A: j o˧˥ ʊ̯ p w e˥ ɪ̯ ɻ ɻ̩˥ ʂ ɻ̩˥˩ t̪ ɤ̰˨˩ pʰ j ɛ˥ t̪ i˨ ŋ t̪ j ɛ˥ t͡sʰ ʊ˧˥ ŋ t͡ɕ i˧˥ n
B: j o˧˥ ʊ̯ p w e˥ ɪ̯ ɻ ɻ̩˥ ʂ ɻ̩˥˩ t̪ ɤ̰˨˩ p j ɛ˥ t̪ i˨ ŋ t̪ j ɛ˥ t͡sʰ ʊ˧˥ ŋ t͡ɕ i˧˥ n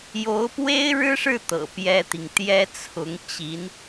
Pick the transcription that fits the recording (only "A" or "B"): B